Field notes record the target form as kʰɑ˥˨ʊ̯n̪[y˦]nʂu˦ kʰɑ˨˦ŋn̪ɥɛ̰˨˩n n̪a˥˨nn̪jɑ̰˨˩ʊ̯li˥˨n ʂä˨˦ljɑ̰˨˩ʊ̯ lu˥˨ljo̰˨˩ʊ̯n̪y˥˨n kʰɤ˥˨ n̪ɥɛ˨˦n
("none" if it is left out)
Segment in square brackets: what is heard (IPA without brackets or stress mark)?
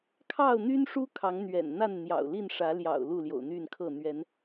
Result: y˦